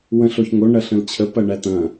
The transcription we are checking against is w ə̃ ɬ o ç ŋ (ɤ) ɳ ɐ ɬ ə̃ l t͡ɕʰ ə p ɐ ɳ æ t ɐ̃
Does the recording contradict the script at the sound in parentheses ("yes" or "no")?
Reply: yes